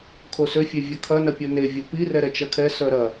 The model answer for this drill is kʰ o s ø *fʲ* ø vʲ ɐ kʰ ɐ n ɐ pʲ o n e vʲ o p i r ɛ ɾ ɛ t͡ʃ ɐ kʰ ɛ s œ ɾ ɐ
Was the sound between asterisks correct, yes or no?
yes